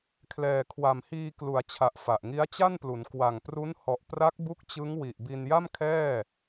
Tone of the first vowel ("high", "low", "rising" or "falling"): low